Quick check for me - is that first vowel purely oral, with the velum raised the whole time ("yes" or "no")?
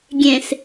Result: no